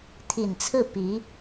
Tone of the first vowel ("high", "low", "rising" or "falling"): low